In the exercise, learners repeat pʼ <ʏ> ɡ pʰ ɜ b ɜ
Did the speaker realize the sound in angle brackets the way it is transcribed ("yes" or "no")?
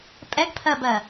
no